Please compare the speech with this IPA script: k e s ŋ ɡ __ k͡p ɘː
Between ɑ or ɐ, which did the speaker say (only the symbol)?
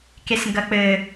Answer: ɐ